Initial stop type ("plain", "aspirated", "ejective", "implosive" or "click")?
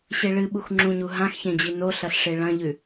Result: implosive